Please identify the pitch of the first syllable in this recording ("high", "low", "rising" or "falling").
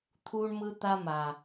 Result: high